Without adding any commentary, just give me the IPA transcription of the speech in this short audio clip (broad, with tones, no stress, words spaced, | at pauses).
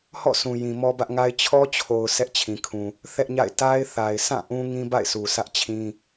hɔ̰˦˨sʰũ˨ jĩ˨ mɔ˦bä˦ʔŋa˦ɪ̯ t͡ɕʰɔ˦t͡ɕʰo˨ʊ̯ sʰɛ˦ʔt͡ɕʰĩ˨kʰũ˨ | θɛ˦ʔɲa̰˦˨ɪ̯ ta˦ɪ̯θa˨ɪ̯sʰã˦˨ ʔũ˦ŋĩ˦ba̰˦˨ɪ̯sʰu˨ sʰä˦ʔ t͡ɕʰĩ˦